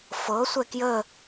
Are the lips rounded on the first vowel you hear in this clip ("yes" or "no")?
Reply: no